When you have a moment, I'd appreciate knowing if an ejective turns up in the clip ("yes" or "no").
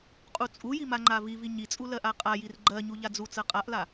yes